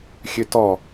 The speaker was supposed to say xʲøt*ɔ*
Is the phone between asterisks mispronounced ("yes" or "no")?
no